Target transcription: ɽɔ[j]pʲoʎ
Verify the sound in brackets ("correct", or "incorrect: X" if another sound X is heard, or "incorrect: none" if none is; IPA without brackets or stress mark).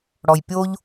correct